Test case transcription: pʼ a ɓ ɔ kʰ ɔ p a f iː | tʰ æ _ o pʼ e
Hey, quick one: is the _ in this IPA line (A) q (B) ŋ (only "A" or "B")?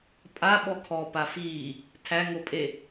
B